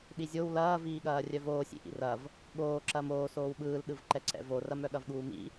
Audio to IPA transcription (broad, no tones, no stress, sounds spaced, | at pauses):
ɗ i zʲ o w l ɐː v iː ɠ ɐː rʲ œ v oː sʲ ḭ ʔ ḭ r ɐ v | ɠ oː ǁ ɐː m oː s oː w ɓ ɯː l ɗ ɯ v ǃ ɛ ǀ ɛ̰ v o r ɐ m œ ɠ ɐ v ɠ uː m ḭ